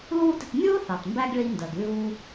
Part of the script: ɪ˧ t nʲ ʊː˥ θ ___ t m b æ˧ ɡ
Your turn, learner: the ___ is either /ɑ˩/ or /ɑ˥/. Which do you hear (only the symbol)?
ɑ˩